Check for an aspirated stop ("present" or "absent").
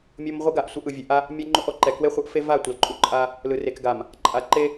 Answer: absent